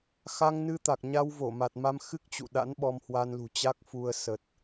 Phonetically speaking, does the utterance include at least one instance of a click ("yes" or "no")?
no